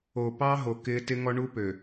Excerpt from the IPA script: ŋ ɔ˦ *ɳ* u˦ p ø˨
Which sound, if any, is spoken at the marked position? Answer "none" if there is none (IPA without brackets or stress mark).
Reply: ɳ